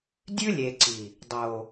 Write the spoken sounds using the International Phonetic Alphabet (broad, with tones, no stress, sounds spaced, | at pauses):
dʲ ʉ˦ lʲ e˨ ǀ i˨ | dˤ o˨